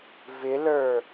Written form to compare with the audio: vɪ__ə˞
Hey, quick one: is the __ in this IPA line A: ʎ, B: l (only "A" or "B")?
B